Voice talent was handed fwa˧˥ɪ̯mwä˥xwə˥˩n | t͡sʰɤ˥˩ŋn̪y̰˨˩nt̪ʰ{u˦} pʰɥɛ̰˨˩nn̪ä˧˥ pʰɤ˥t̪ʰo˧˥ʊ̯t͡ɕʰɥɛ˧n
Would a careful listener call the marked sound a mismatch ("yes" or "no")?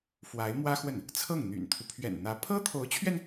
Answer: no